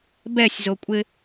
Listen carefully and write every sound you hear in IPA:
bɛsʲzokʷʼɪ

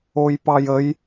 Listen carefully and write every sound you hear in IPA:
ojpɑjəj

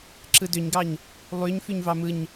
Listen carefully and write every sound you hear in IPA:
ǁɯdøɲɡɑɲ | lˠyɲ fyɲvɑmɯɲ

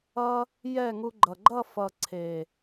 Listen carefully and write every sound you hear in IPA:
ʌ˦ | jɛ˦˨ŋu˧ɡ͡ǃʌ˨ ɡ͡ǃʌ˦˨fʌ˨ǀʰe˨

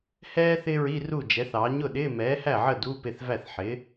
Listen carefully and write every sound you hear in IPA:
hɛː˥ θɪː˥ɹi˧˥˧ru˥˩d͡ʒɛ˩˥θ ɑː˩˥ɲʊ˥˩ɗɪː˧˥˧ mɛː˩˥hæ˥˩ʕə˥˩ duː˧˥˧p ɪ˥˩θvæ˥˩θ ħɪː˩˥

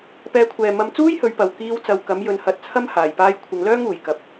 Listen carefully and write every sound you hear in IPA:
pɛː˨˧kʷʰɛː˨ mɐ˧m t͡suː˥jhɵ˨˧ɥpɐ˨w kiː˧w t͡sɐ˨˧wkɐ˨˥m jɵ˧nhɐ˧t̚ t͡sʰɐ˥m haː˨˩jpaː˧j kʷʰɪ˨˧ŋlœː˥ŋuː˨˩j kɐ˨˥p̚

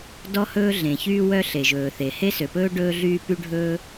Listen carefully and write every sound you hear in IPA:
dɔ˥hɵː˥ɮẽ˩çyː˥ wœ˥ɬe˩ʒɵː˩θe˩ he˥sø˩pɵː˥ ɖɵː˥ɮyː˥py˥ɖʱɵː˥

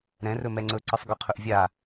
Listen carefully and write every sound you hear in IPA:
ɾɛ̃rɵ mɛŋ͡ǀɵ ǀɯsˤɡœqʰɵʔvʲa

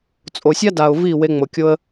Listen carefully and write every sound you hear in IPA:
t͡sʼo˨sʲa˦da˨ʊ̯ vi˦˨ we˧ŋ͡mo˨kʲo˦ə̯

